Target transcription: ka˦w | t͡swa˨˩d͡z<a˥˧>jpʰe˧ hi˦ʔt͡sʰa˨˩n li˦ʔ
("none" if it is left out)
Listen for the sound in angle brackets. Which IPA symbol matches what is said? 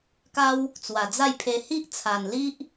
a˥˧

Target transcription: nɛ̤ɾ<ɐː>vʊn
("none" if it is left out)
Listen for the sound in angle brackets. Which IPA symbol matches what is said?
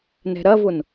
ɐ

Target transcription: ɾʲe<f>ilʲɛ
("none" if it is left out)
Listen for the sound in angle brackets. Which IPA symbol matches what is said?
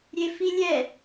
f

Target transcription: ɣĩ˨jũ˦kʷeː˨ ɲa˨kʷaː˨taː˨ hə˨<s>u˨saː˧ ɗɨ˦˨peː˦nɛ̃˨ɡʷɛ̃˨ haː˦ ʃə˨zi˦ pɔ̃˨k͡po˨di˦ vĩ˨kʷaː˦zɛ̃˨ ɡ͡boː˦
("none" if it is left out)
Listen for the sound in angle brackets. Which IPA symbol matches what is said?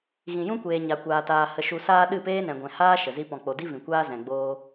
ʃ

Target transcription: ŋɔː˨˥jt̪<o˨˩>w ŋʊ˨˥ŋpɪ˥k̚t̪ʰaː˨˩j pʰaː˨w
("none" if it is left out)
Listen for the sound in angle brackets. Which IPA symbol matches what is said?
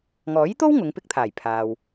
o˥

